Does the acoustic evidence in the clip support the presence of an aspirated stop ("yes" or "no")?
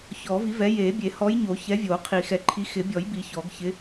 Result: yes